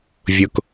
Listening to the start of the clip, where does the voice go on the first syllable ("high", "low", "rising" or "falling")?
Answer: high